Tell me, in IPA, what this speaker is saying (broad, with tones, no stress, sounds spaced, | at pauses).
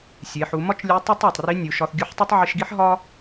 sʲ e˩˧ ħ u˩˧ m ɒ˥ t͡ʃ lʲ u˧˥ tˤ u˥ tˤ æ˩ tˤ r i˧˥ nʲ u˩˧ ʃ ɒ˧ θ ɡʲ u˧˥ ħ tˤ o˥ tˤ ʕ i˧ ʃ ɡ i˥ ħ ɦ ɒ˥